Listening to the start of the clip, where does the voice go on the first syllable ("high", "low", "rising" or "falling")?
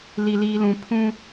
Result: low